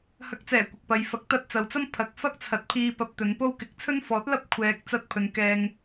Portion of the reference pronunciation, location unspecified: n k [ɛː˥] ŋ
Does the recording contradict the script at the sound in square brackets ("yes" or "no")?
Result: yes